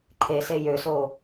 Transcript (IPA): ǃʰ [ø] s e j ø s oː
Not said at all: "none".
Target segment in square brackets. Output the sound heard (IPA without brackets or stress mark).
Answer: e